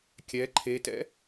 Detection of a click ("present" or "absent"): present